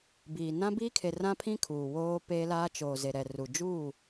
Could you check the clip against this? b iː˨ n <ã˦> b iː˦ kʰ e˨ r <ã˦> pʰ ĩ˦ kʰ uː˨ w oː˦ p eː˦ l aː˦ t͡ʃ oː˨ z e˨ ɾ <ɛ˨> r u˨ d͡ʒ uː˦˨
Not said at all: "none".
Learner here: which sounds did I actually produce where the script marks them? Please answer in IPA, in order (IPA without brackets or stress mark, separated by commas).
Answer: ã˦, ã˦, ɛ˨